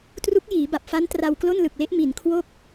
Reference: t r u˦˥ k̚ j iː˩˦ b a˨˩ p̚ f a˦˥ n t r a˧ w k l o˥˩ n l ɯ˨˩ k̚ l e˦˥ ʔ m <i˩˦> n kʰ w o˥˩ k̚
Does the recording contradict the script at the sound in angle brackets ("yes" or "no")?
no